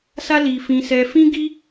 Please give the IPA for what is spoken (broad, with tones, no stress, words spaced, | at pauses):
sa˦li˧ fĩ˧sɛ˧fĩ˦ ɡi˦